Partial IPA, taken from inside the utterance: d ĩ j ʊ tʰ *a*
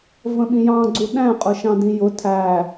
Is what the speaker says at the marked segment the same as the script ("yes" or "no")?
no